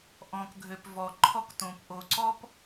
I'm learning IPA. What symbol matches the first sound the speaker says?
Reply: ʔ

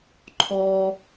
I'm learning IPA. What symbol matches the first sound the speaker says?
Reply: ǃʰ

